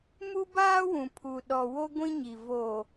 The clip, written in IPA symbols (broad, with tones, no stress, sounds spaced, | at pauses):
m u˦ b aː˦ w ũ˨ pʰ u˨ ɗ ɔ˨ w o˦ ɡʷ ĩ˦ ɲ i˨ v oː˨